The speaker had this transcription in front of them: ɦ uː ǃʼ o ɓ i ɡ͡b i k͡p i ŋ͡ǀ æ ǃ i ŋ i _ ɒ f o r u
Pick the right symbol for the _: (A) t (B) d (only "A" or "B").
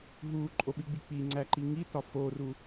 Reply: A